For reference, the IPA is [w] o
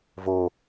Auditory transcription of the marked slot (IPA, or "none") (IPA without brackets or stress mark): v